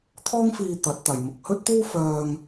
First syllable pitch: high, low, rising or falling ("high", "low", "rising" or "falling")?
high